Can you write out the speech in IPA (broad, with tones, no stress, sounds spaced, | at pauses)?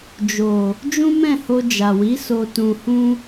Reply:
d͡ʒ o˨ | d͡ʒ ũ˦ m ɛ̃˦˨ h o˧ d͡ʒ a˨ w i˨˦ s o˧ t ũ˧ h ũ˦